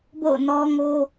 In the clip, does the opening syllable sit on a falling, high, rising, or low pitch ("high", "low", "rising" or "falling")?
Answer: falling